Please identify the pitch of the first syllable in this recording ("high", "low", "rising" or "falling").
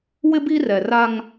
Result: high